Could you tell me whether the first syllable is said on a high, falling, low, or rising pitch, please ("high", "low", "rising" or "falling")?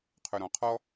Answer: low